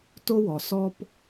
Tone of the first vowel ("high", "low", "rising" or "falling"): high